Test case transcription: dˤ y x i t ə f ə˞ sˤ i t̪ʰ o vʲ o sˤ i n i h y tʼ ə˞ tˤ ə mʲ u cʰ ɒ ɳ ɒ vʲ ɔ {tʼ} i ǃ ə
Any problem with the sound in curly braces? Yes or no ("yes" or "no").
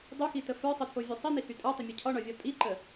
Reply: no